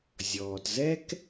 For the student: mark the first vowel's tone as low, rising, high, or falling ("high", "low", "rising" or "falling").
low